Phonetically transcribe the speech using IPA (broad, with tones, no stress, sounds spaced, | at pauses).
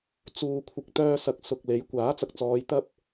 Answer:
t͡s uː˨ kʷʰ ɪ˨ k̚ t̪ œː˧ s ɐ˨˥ k̚ s ʊ˨ k̚ l e˨˥ j kʷ aː˨˥ t͡s ɐ˨ k̚ t͡s ɔː˨˧ j t̪ ɐ˥ p̚